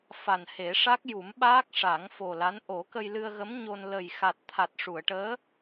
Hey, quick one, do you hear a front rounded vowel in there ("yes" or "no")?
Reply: no